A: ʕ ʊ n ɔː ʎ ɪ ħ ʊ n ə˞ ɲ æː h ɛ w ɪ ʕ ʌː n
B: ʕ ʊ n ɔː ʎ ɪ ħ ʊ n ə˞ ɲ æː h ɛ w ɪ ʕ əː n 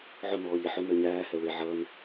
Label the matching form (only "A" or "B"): A